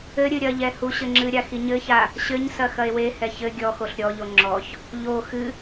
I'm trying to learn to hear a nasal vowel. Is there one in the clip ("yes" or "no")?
no